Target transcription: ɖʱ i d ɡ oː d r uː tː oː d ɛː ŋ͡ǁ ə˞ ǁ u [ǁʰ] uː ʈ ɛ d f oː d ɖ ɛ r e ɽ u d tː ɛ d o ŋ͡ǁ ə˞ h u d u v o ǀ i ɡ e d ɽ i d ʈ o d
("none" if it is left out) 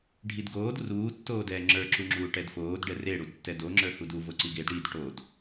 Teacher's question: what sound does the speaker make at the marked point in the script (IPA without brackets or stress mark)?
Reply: ŋ͡ǁ